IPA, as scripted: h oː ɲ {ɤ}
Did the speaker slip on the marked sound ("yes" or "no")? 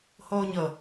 no